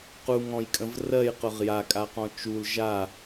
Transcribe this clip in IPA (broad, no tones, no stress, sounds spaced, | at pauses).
q u ŋ ɔ̃ j kʼ ə̃ v r ɜ j q ʊ ʁ j a kʼ a q ɔ̃ t͡ʃ u l ʒ a